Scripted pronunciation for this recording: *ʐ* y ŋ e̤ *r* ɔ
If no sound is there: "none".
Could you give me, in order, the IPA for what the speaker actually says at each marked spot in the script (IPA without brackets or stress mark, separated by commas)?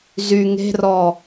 z, r